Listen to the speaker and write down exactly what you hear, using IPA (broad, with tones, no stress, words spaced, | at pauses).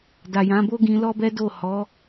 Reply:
da˨jã˨˦bo˦ ɡĩ˧ lɔ˦bɛ˦do˦˨ hɔ˨˦